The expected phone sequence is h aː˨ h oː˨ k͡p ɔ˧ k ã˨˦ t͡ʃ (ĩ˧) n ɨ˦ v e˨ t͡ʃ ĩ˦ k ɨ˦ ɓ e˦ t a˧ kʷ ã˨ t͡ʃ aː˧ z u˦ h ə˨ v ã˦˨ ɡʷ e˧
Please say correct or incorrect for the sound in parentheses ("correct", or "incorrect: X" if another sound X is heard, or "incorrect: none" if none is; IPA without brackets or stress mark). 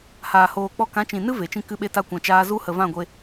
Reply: incorrect: ĩ˨